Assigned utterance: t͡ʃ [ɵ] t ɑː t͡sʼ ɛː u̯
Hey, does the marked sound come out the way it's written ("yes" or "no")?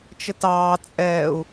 no